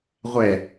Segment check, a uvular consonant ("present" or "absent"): present